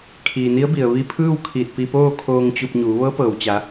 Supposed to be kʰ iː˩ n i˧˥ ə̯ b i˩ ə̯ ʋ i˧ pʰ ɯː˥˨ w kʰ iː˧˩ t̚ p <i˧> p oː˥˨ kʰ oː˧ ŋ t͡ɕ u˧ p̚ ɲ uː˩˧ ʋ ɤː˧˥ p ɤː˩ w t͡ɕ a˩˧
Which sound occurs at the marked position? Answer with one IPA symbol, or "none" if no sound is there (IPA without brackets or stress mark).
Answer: i˧